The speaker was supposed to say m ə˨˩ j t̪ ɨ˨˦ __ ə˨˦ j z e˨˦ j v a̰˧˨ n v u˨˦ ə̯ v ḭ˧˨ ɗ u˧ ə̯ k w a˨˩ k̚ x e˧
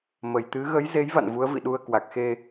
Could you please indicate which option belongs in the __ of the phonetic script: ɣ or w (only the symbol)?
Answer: ɣ